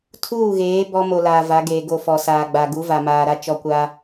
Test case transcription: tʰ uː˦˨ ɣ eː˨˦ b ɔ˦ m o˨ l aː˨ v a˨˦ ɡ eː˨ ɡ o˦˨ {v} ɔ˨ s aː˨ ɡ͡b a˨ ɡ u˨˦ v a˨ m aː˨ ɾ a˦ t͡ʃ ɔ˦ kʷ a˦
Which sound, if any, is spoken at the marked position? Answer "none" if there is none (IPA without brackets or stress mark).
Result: f